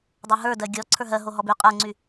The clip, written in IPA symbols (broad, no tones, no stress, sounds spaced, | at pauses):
dˤ o ɦ ə˞ d ɜ ɡʲ ɔ ǀʰ ə˞ ɦ ɜ ɦ o ɦ ɔ b y qʼ ə˞ ŋ͡ǀ y